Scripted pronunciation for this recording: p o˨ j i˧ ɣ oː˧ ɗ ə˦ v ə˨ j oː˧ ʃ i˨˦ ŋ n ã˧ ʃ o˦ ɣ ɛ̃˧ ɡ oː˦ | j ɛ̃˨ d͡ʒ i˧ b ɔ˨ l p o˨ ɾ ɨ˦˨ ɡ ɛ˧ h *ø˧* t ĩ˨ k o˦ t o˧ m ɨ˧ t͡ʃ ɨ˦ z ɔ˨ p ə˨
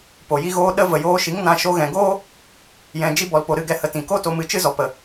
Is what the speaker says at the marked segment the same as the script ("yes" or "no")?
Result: no